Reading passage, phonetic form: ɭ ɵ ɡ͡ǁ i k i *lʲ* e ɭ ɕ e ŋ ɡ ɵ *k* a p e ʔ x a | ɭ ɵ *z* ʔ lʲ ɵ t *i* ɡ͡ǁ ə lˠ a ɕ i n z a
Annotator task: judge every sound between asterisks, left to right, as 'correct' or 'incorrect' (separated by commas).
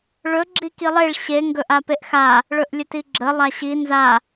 incorrect, incorrect, incorrect, correct